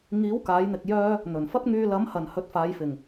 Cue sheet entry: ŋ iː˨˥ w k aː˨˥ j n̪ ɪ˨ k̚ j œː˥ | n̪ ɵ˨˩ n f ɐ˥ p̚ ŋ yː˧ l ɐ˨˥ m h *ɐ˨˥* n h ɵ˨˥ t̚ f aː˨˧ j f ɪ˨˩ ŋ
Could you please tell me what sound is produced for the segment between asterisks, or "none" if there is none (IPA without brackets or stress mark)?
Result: ɐ˨˩